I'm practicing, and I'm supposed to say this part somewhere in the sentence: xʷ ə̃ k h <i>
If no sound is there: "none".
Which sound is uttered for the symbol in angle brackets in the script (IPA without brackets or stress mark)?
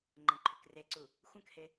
e